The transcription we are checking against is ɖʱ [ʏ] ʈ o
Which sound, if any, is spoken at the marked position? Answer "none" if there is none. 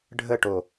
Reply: ə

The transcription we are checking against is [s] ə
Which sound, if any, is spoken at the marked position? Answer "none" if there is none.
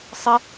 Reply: sˤ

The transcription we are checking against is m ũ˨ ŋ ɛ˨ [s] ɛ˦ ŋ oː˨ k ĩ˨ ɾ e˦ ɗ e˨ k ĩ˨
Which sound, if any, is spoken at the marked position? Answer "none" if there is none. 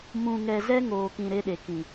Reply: z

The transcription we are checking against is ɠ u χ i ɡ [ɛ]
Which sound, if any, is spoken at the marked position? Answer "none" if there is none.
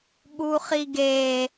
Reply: e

